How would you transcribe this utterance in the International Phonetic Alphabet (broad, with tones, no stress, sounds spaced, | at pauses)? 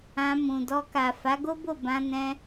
ã˧ m ũ˨ d ɔ˧ k a˨ f a˨˦ ɡ o˦ b o˦˨ b ã˧ n ɛ̃˧